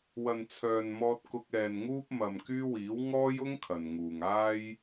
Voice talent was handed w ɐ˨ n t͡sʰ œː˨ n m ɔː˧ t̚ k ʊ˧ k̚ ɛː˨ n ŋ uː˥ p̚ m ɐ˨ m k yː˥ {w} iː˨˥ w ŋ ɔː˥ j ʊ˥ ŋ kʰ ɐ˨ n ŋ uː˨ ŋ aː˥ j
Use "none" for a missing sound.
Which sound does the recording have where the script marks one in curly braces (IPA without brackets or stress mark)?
w